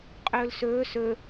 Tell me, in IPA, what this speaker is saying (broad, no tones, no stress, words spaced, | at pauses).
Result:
qʼɵːlsɵː sɵ